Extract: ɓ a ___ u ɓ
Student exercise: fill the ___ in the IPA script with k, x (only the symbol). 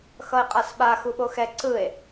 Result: x